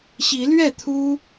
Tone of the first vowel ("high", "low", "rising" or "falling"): rising